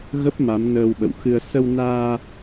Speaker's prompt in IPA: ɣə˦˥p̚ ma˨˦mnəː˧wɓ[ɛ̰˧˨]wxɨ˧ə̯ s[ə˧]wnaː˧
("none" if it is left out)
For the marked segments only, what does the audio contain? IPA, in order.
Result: ə̰˧˨, ə˧

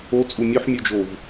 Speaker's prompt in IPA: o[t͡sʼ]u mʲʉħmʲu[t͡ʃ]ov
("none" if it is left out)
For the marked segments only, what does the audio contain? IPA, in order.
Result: t͡sʼ, d͡ʒ

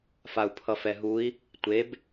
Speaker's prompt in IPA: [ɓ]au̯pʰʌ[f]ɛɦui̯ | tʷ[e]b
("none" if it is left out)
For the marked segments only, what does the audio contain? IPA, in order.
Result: f, f, e

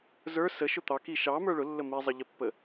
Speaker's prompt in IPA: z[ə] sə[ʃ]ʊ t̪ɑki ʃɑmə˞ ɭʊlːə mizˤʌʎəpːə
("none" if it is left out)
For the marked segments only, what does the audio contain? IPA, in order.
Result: ə˞, ʃ

